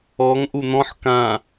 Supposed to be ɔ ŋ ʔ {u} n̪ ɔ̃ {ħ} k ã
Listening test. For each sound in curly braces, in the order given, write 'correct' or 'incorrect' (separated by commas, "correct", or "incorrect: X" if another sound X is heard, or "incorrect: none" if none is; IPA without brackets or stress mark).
correct, correct